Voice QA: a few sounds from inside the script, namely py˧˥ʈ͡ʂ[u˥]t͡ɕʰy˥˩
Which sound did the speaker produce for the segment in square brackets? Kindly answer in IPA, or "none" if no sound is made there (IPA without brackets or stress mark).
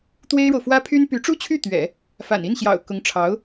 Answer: u˥